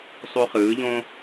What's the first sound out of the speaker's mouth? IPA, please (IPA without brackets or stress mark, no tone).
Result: sˤ